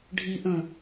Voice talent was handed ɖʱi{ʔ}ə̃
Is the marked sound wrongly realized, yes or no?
no